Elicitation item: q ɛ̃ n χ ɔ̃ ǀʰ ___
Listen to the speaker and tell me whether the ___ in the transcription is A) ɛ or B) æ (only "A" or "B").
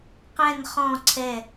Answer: A